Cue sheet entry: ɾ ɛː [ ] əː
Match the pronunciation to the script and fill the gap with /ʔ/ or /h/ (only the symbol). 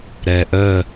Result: ʔ